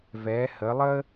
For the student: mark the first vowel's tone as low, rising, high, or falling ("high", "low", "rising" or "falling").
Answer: rising